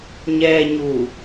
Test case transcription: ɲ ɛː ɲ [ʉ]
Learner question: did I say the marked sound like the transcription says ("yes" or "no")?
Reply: no